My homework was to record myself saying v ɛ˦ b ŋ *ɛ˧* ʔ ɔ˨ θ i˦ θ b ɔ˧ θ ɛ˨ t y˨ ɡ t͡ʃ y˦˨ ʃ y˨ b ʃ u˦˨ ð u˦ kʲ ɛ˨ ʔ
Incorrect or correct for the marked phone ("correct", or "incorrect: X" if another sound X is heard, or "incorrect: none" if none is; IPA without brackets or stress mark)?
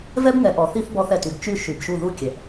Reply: incorrect: ɛ˨